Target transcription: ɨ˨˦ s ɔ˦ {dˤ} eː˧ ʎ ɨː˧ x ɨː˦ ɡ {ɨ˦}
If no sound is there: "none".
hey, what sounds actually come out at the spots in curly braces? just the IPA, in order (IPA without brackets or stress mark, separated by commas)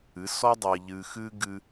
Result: dˤ, ɨ˦